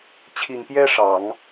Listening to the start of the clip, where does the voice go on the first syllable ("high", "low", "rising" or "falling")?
low